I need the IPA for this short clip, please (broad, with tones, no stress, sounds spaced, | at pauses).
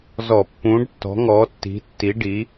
z ɔ˧˩˧ pː ũː˨˥ ɖ tː ɔ̤˨˥ ŋ ɔː˨˥ tː i̤˨˥ tː i˨˥ ɖ i˨˥